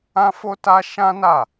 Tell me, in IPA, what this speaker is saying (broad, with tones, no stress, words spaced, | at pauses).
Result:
ã˦fo˦ta˦ ʃã˦na˦˨